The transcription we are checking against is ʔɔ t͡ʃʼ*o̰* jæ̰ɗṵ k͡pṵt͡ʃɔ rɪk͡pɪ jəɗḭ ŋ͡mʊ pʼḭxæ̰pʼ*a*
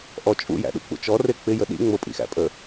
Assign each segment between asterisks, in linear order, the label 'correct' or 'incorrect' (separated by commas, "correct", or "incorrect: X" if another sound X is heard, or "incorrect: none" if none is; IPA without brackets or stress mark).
incorrect: ṵ, incorrect: ə